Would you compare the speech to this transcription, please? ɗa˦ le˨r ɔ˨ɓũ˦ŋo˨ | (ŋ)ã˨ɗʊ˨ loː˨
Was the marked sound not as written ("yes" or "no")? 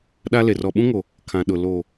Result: yes